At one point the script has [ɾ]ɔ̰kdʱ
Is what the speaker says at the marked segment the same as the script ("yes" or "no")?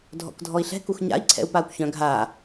no